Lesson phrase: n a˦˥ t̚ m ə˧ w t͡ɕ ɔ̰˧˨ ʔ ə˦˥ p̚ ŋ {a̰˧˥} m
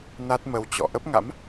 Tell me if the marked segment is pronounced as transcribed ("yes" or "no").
yes